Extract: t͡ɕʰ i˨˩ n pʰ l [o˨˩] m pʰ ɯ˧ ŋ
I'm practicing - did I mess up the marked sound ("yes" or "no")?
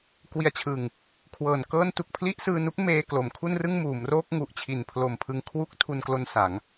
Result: no